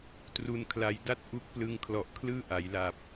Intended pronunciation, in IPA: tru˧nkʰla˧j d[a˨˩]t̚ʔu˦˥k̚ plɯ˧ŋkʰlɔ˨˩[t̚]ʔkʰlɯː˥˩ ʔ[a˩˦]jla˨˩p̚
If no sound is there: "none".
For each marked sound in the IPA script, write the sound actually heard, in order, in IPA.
a˥˩, none, a˩˦

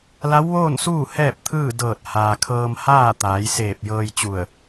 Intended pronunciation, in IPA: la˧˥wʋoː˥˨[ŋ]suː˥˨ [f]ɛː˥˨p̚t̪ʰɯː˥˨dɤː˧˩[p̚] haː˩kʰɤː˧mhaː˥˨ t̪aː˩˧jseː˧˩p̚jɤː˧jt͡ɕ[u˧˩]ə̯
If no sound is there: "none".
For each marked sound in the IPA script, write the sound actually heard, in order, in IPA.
n, h, t̚, u˧˩

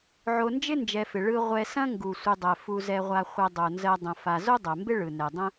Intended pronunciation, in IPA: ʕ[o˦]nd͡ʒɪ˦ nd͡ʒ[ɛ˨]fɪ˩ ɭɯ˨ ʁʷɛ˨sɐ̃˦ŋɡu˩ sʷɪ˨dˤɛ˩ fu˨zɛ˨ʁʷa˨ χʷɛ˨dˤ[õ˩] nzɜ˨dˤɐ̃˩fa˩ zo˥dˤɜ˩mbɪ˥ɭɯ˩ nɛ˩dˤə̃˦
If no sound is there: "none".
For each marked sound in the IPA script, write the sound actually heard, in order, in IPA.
o˨, ɛ˨, o˩

